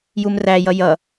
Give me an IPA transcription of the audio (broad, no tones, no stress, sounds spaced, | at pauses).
j u m r æ j ʌ j ʌ